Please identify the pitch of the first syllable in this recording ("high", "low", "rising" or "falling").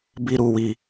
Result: high